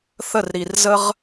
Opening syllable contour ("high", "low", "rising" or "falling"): falling